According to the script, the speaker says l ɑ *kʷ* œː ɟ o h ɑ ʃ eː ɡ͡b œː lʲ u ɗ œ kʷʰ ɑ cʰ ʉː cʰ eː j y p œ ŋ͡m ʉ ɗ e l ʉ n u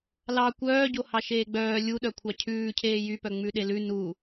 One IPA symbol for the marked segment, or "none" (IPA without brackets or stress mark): kʷ